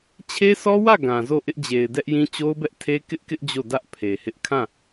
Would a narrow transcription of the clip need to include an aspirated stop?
yes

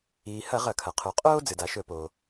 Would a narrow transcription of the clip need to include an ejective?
yes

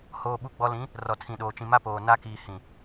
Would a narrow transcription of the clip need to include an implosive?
yes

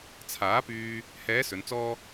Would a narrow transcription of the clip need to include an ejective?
no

